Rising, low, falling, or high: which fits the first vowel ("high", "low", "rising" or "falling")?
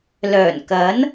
low